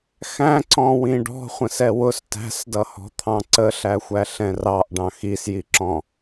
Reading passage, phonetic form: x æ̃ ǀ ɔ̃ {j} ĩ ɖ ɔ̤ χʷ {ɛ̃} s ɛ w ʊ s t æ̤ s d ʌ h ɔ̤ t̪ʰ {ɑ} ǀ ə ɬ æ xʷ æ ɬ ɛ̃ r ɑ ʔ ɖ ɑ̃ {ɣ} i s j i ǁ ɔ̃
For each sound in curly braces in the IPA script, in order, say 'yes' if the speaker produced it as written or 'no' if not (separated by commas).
no, no, no, no